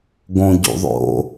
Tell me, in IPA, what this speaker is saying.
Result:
ɡ õ ɟ ṵ ðˤ o̰

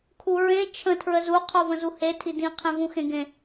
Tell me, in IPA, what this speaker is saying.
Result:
kʰ u ɹ ẽ t͡ʃʰ ə̃ tʰ ɹ ə z u qʰ o v ə̃ z u h e tʰ i d ĩ qʰ ẽ v ũ x ẽ ɡ ẽ

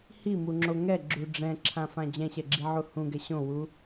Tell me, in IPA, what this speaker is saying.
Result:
h i m u ŋ͡ǁ o ŋ ɛ ɡ͡ǁ u ɖ͡ʐ ɛ̃ ǁʰ ã f ã d͡ʑ ɛ̃ ɕ ɛ ɡ͡ǁ i ʕ u h ũ ɡ ɛ ɕ õ w u

